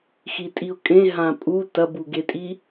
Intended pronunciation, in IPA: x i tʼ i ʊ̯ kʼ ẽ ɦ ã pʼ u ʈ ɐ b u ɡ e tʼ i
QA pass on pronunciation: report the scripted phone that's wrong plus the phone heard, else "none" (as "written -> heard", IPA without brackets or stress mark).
ʈ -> t